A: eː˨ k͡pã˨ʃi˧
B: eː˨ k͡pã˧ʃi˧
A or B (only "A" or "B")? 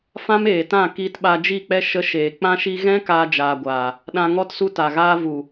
B